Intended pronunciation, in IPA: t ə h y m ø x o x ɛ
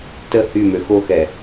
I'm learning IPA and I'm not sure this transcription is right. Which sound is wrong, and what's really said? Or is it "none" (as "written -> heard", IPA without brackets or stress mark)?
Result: none